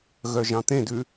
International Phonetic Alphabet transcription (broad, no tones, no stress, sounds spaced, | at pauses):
ɣ œ ʒ ɑ̃ t̪ ẽ d ʉ